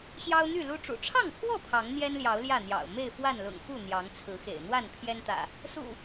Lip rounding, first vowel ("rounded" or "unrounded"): unrounded